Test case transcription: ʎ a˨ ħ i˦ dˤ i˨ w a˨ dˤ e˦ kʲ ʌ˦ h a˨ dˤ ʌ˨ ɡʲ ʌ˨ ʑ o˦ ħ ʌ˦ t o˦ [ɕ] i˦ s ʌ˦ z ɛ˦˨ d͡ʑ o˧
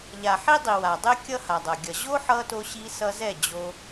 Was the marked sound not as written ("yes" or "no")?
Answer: no